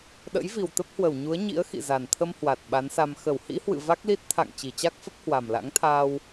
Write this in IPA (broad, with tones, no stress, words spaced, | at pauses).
ɗə̰˧˥j vi˨˩wt̪ə˦˥p̚hwə˧˩w ɲu˨˦ə̯ɲḭ˧˥ə̯xḭ˧˨ za˨˩nt̪ʰə˧m hwa˨˩t̚ ɓa˨˦nsa˧m xə˧˩w hḭ˧˥hwɨ̰˧˨ va˦˥k̚li˦˥t̚ t̪ʰa̰˧˨ŋ t͡ɕi˧˩t͡ɕa˦˥k̚fə˦˥p̚ hwa˨˩mla̰˧˥ŋt̪ʰaː˧w